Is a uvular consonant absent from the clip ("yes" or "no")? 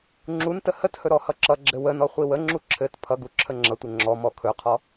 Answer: no